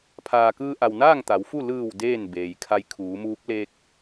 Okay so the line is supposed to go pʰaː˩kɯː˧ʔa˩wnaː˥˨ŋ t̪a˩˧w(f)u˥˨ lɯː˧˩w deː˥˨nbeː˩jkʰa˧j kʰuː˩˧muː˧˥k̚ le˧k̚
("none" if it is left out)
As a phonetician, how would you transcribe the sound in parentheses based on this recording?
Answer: f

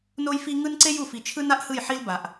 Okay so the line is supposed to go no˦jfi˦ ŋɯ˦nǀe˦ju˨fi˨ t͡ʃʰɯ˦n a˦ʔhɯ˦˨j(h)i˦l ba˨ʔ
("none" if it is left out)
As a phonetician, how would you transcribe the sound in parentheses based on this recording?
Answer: ħ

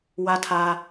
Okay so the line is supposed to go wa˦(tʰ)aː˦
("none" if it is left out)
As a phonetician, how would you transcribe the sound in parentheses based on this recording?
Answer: tʰ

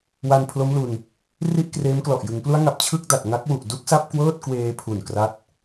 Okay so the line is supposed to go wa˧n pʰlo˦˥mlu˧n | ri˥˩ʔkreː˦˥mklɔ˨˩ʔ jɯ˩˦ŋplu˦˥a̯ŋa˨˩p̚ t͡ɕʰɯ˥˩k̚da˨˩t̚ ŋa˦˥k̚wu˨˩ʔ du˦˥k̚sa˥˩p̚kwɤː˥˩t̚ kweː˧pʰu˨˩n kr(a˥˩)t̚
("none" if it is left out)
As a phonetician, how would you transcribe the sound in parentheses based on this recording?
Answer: a˥˩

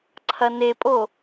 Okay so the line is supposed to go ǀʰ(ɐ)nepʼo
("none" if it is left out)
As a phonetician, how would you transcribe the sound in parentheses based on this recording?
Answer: ɐ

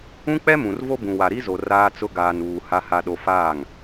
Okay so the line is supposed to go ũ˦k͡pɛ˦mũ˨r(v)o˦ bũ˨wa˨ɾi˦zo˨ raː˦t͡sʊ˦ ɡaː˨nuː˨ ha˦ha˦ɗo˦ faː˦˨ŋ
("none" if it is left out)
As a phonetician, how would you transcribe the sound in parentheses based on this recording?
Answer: v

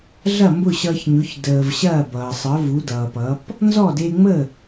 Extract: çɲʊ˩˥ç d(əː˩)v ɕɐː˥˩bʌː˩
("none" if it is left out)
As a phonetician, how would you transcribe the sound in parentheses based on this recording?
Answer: əː˩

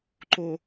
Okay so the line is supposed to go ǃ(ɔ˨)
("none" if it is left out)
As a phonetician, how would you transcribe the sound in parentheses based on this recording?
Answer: o˨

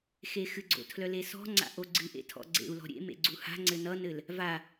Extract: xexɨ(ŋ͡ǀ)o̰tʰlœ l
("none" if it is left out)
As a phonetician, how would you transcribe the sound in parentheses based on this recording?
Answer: ɡ͡ǀ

